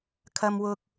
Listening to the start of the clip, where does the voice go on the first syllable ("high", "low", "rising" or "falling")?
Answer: low